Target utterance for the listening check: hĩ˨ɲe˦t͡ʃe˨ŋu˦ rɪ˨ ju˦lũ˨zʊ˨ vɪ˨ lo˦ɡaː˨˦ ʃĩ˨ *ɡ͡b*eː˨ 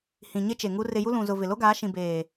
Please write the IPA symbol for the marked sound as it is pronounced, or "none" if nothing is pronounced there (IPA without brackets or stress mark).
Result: b